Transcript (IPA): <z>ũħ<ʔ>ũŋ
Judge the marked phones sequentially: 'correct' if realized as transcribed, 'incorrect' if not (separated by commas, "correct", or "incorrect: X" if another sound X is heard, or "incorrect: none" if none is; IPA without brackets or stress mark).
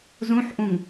correct, correct